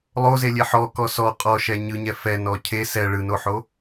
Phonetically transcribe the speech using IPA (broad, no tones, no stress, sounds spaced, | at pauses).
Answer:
lˠ o z e lʲ e ħ ɔ k ɔ s ɔ qʼ ɔ ʃ ɛ ɲ ɯ ɲ ɛ f ɛ n ɔ cʰ e s ɛ ɭ ɯ n o ħ o